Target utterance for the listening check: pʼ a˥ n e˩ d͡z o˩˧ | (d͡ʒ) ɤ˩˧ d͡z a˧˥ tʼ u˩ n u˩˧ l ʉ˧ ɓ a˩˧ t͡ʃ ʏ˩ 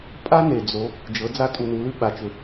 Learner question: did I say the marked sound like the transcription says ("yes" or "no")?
yes